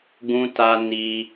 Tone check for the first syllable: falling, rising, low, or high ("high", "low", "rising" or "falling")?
high